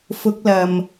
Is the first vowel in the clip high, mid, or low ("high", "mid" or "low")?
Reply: high